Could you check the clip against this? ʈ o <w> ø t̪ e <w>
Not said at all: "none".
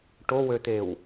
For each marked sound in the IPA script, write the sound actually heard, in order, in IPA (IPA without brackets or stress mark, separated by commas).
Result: w, w